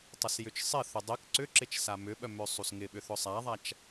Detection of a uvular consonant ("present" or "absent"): absent